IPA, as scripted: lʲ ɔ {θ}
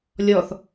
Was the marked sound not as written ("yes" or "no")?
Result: no